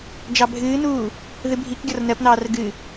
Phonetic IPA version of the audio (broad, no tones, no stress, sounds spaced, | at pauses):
d͡ʒ ɑ bʱ ɨː n uː | ð ɨ bʱ i k ɡʲ ɔ r n ɜ p n̪ ɑː r ɡ ɨ